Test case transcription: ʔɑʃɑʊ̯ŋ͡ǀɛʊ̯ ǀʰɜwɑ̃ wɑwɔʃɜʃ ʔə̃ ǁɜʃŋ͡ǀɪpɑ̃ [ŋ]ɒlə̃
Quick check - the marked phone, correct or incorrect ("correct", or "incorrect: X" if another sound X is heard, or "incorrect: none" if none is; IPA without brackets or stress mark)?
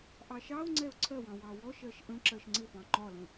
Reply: incorrect: ŋ͡ǃ